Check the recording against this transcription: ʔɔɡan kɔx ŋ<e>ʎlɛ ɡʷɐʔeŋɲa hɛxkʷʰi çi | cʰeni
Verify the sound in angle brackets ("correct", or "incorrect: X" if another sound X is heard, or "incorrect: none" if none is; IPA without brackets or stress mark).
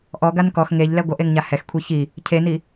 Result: correct